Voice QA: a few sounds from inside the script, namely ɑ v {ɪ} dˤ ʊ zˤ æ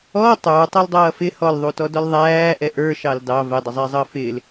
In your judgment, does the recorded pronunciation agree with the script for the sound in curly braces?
no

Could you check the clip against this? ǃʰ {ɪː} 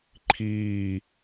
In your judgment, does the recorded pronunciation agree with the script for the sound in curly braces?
no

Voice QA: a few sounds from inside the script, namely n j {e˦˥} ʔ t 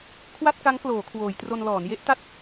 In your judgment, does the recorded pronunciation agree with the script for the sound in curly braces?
yes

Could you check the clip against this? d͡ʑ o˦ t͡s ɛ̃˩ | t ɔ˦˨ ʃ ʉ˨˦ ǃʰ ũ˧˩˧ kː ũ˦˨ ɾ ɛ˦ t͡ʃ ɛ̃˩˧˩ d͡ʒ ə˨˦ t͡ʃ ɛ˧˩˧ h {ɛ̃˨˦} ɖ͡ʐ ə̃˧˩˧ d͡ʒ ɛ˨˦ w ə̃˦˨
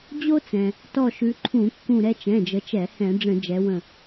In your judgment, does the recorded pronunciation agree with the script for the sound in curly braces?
no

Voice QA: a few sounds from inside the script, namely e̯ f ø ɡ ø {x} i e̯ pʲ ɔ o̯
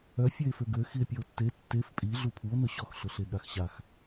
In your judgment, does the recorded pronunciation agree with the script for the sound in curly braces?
yes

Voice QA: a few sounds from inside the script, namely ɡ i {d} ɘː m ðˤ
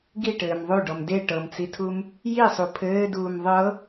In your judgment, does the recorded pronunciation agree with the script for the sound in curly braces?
no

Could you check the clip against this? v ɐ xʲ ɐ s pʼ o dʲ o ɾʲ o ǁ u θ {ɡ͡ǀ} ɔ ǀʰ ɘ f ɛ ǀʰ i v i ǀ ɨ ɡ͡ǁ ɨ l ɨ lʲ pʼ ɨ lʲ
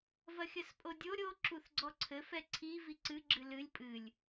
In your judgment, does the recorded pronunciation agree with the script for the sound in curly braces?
yes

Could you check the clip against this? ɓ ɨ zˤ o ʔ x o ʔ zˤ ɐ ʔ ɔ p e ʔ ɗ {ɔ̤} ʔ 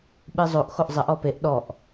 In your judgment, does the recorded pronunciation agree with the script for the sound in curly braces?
no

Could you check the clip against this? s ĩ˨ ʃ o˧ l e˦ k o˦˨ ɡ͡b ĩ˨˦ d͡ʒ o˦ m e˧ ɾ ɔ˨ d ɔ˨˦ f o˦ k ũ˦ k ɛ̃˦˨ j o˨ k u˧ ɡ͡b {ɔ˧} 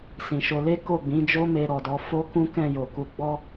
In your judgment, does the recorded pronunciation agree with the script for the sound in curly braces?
no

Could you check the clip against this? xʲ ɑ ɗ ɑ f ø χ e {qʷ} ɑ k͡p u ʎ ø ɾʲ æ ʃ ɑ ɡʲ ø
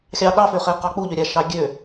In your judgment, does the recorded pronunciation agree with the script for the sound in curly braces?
no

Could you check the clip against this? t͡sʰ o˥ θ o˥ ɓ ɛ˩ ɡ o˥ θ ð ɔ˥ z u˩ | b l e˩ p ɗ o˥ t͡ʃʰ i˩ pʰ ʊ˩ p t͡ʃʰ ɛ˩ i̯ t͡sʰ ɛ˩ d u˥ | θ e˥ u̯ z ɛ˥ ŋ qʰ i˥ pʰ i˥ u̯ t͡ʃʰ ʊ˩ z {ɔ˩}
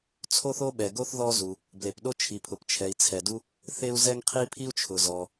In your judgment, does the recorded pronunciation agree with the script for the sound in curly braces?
yes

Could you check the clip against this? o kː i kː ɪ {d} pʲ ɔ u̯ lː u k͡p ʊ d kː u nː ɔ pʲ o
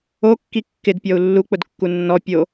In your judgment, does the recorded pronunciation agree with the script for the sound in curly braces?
yes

